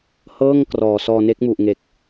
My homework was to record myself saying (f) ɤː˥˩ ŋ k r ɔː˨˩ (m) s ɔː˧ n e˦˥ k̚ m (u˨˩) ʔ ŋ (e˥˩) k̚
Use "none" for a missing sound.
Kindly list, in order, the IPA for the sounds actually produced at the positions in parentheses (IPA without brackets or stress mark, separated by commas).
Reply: h, none, u˨˩, e˨˩